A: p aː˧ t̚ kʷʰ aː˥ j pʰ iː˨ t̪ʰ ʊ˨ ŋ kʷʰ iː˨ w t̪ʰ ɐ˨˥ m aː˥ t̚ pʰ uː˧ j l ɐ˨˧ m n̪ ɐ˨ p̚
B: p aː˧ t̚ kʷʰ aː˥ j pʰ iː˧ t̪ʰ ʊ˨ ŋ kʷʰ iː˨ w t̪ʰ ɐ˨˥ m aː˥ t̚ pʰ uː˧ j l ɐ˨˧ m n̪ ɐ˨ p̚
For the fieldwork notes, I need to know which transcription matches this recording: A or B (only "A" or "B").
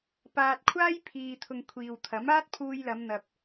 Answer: A